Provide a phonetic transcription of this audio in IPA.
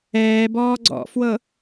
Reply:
ɛː b ɔː ɡ͡ǀ ɔ̰ f w ɤ

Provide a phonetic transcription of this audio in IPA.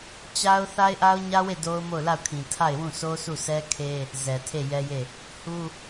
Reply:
t͡ɕ a˦ ʊ̯ θ a˦ ɪ̯ ʔ a˦ ʊ̯ ɲ ä˦ w e˦˨ d o˦ ʊ̯ m o˦˨ ʊ̯ l a˦˨ ʊ̯ kʰ ĩ˨ tʰ a˦˨ ɪ̯ w ũ˦˨ s o˦ sʰ u˦˨ s ɛ˦ kʰ e˦ | z ɛ˨ tʰ e˦˨ j ɛ˦ j e˦˨ | h u˦

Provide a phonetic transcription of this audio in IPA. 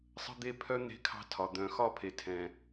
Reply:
sˤ ə̤˦ d̪ e˦ pʰ œ˦ n̪ e̤˦ kʰ ɑ̤˦ tʰ ɒ˨ d̪ œ̃˨ x ɒ˦ pʰ e˨ tʰ ɛ̃˨

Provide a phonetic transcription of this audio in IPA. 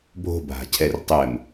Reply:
bʱ o̤ bʱ a̤ cʰ ɛ r tˤ ɘ m

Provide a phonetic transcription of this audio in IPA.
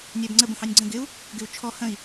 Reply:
nʲ æ b ŋ͡ǀ ə b ə̃ h ɑ nʲ ɡ͡ǀ ə̃ ɡ ɪ u̯ | ɡ ɪ u̯ t͡ʃʰ ɔ h ə̃ i̯

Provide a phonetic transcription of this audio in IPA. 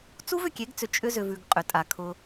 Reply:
t͡s u˦ v ʏ˨ kʲ e˨˦ ɡ t͡s ʏ˨ t͡ʃʼ ʏ˦ z ʏ˨ v ʉ˨ ɡ qʼ ʏ˨ tʼ a˨ kʰ ʊ˦

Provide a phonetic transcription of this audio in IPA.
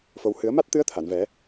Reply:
f o˧ w h ɨ˨˩˦ ə̯ m a˦˥ t̚ t̪ ɨ˧˥ ə̯ t̪ʰ a˨˩˨ n v ɛ˨˩˦

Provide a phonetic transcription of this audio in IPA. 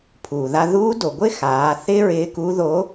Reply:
pʰ uː˩ ð a˧ ð uː˧˥ d o˩ ɡʷ ɪ˥ x aː˩˧ θ ɪː˥ ɹ ɪː˧˥ k u˧˥ ð o˧˥

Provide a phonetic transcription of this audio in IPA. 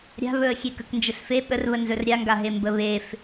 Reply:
ɾʲ a̤ β ɵ ə̯ xʲ e k ə k n d͡ʒ ə s f e ɓ ə r β ə n z ɵ r ɾʲ a ŋ ɡ a ɦ e m b ə β e f

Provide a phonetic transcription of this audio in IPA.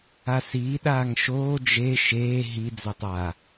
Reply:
a s iː ɗ aː ŋ ʃ oː d͡ʒ e ʃ eː ɦ i d͡z ɵ tˤ a

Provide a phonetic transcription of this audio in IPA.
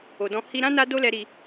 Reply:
o˨ d ɔ̃˧ h i˧ ɾ ã˦ n a˦ d o˦ l ɛ˧ ɾ i˧

